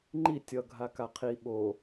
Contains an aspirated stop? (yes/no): yes